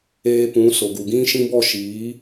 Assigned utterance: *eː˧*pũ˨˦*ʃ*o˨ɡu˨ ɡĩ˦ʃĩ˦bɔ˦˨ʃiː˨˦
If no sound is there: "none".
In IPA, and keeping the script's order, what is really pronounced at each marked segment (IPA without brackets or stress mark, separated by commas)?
eː˧, s